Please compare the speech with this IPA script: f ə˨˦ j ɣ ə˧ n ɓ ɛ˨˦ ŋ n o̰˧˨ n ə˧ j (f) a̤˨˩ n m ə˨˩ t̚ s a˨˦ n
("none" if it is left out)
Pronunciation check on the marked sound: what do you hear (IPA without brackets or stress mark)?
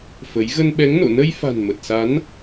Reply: f